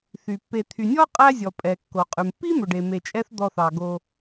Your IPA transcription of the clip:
θ y˩ pː e˨ t̪ʰ y˨ nʲ ɔ˥ qʼ æ˦ zʲ ɔ˩ pʼ ɛ˩ kː o˩ qʼ ʉ˩ m pː i˥ m ɵ˩ ɖ e˩ m e˨ t͡ʃʼ ɛ˦ θ d̪ ɔ˨ θ ɑ˩ ɡ o˨

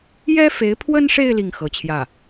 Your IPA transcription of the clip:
j ɛ˥ f e˧˥ ɪ̯ pʰ w ə˥ n ʂ e˥˧ ɪ̯ l i˥˩ ŋ x ɤ˧˥ t͡ɕʰ j ä˥˩

